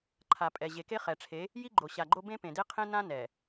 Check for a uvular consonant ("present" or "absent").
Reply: present